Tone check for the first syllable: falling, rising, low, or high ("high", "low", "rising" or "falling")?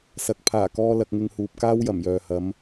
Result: rising